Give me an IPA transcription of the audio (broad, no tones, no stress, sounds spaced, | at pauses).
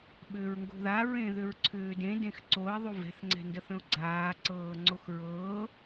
ɓ ʏː ɹ ŋ ɡ o̤ ð a ɹ ẽ ð ʏ ɹ ǀʰ ʏː d ẽ d ẽ x ǀ o ɪ̯ ðˤ u v ɛ̤ θ ŋ͡ǀ ɛ̤ n d ə θ ə̃ ʊ̯ ɡ͡ǀ aː ǀ ɤː ŋ͡ǀ o x ɹ ɤː